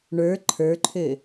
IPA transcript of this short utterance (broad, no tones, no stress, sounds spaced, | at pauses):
ɳ ə˞ ǃʰ ə˞ ǃʰ ø